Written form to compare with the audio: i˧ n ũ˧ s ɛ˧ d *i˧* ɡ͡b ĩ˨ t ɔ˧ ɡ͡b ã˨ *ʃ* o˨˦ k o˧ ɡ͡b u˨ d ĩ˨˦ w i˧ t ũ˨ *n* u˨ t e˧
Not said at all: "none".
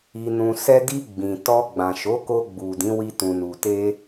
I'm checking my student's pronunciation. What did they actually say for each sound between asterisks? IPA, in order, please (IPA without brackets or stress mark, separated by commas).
i˧, ʃ, n